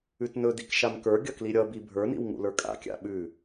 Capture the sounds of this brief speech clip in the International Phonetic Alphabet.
ʉtnɵdik ʃamkə˞ɡʲʌ kliɾʲʌbi bʱə˞nḭw ŋṵlə˞kʼa̰kʲa̰ ɓʉ

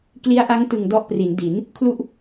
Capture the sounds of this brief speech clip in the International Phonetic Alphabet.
kli˦˥a̯ʔa˦˥ŋtɯ˨˩ŋ dɔ˦˥ʔpri˩˦ndi˩˦n | kʰlu˥˩ʔ

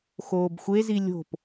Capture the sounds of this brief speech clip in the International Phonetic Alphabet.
xoːbxʷezi lʲo̤p

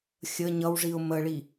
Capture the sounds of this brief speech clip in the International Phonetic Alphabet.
xʲə ɲʌwʐiʊ̯ məɭi

